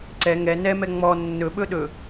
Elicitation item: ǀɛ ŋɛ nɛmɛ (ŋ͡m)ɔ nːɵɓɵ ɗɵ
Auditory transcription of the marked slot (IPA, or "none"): ŋ͡m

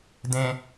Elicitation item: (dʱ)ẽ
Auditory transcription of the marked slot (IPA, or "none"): d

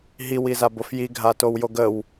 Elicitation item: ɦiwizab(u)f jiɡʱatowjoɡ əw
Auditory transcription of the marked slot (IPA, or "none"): o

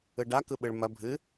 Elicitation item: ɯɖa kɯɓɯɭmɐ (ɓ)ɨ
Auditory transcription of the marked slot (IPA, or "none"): bʱ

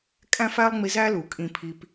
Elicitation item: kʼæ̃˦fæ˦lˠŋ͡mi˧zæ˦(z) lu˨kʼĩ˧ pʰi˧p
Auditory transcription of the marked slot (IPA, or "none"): none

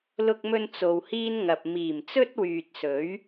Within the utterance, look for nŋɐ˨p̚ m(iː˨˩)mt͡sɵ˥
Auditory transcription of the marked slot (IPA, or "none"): iː˨˩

